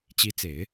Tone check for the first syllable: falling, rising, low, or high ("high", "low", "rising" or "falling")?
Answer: rising